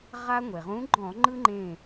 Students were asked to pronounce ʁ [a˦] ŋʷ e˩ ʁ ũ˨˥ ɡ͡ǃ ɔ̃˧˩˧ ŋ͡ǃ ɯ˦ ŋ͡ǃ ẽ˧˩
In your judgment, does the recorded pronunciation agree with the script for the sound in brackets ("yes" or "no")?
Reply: yes